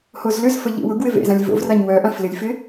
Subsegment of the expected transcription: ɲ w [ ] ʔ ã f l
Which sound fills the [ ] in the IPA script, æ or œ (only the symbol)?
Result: œ